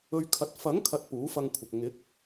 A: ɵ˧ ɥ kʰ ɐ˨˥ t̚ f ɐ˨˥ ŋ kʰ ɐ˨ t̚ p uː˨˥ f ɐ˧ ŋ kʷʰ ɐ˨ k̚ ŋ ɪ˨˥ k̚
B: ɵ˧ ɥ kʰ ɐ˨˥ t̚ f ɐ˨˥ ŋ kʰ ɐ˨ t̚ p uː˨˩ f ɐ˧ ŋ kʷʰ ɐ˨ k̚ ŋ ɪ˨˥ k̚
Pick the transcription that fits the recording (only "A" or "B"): A